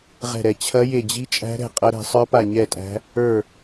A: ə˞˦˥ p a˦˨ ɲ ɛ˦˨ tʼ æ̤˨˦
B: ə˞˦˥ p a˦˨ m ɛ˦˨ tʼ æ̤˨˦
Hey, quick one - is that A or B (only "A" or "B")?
A